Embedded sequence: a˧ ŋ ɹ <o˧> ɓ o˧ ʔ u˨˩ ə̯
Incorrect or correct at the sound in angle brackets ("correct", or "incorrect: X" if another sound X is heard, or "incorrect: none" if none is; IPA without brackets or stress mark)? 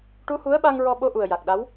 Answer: incorrect: ɔ˧